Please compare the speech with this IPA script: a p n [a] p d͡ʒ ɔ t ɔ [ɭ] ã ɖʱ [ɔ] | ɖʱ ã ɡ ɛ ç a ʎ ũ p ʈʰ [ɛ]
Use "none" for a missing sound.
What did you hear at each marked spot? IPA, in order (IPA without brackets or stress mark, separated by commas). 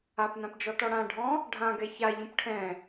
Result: ã, ɽ, ɔ̃, ɛ̃